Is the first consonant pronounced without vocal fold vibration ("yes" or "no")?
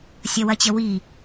yes